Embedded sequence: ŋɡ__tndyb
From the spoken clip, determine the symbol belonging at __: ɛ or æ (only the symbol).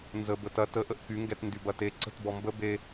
ɛ